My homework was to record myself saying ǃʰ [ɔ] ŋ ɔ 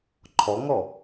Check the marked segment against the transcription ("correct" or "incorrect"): correct